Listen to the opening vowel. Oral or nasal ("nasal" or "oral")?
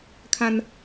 nasal